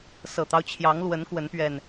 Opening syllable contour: low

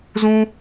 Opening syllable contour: high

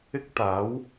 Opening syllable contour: high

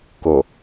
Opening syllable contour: low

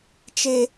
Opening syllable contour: high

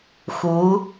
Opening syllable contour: rising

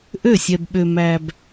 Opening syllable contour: falling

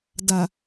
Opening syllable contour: low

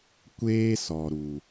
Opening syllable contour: high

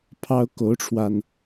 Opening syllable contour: high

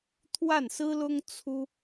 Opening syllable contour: falling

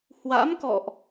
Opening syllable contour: rising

